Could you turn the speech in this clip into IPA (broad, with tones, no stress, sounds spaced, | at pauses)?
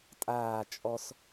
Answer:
tʼ aː˦˨ t͡ʃʼ ɔ˦ s